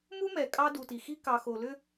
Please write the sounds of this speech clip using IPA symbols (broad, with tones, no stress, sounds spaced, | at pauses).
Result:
m u˦ m ɛ˨ kʼ ɑ˦ d u˨ t i˨ x i˦ k ɑ˨ x o˨ l ʏ˦